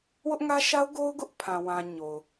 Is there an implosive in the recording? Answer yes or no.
no